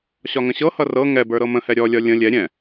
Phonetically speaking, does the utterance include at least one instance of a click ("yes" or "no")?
no